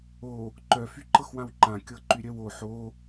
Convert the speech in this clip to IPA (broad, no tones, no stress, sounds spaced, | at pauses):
o | ǃ œ f y ǃ ɤ x w ã w ǃ ã kʲ ɤ ǃ y ɾʲ œ w o ħ o